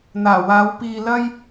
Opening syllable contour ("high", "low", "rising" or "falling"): low